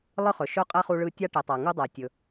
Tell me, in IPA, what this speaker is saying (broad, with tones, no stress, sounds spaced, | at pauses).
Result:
lˠ ɯ˥ χ ɵ˨ ʃ ɵ˥ qʼ ɛ˥ χ u˦ ɭ ɯ˦ tʲ a˥ ʈ ɛ˨ tˤ a˨ ŋ u˥ dˤ a˨ tʲ ɵ˨